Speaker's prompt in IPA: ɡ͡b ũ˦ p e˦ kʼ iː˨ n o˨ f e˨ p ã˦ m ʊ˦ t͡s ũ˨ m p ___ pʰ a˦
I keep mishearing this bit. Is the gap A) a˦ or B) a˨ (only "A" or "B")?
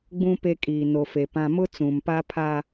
A